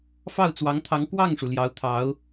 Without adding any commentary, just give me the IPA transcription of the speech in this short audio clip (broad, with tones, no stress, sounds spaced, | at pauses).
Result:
f ɑ˥˩ ʊ̯ t͡s w ɑ˧˥ ŋ t̪ʰ ɑ˧˥ ŋ k w ɑ˥˩ ŋ ʂ u˩ l j ɑ˧˥ ʊ̯ t̪ʰ ɑ˧˥ ʊ̯